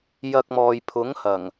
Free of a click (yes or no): yes